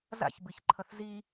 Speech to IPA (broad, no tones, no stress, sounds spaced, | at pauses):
z a̰ ç b ɨ ç ǃʰ ʌ θ z i